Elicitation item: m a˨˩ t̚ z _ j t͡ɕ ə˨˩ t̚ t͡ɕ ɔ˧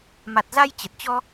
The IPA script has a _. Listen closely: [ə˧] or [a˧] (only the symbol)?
a˧